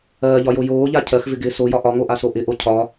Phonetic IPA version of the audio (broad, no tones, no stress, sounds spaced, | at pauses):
ɜː ʎ ɒ j o j oː ʎ a cʰ ɜ x v ɪ ɡ ɪː s o j ɒ ʔ ɒ ŋ o ʔ a s o ʔ ɪ ʔ o cʰ ɒ